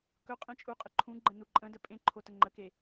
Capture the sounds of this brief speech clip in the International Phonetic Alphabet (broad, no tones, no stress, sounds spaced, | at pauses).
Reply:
k ɵ qʼ ẽ t͡ʃʼ u qʼ ə ǃʰ ũ ɡ͡ǃ ə̃ n u ǃʼ ə̃ d ə pʼ ẽ ǃʰ o t ə ŋ͡ǃ ə k e